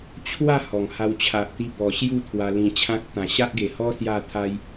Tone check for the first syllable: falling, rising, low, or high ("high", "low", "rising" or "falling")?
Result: falling